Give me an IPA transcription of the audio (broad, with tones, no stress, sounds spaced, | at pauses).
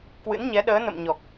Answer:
k w ɨ̰˧˥ n ɲ ɛ˨˦ ɗ əː˨˦ n ə̰˧˨ m ɲ ɔ˨˩ k̚